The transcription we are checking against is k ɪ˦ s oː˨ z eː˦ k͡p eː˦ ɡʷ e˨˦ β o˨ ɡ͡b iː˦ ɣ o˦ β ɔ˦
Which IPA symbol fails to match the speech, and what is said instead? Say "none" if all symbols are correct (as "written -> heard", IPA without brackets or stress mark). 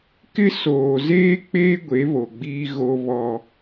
none